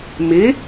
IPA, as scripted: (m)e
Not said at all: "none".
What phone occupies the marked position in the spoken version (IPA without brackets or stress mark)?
m